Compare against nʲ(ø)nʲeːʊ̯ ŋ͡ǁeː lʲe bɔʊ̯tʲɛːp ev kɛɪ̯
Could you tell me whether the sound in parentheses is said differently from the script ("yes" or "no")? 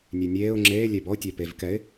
yes